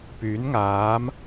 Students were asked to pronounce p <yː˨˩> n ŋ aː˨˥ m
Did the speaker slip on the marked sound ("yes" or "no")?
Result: yes